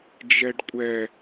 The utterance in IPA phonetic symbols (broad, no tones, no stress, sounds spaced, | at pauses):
d͡ʒ ɛ ɖ kʷʼ ɛ